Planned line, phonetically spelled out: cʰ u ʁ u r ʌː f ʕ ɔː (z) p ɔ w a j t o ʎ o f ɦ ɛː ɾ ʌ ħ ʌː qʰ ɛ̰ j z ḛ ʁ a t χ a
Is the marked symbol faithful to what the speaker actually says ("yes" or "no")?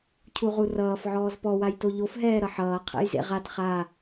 yes